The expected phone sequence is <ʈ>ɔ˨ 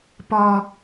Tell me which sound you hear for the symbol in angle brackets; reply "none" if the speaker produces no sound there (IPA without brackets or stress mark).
p